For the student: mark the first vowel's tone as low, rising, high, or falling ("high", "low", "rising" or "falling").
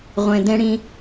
low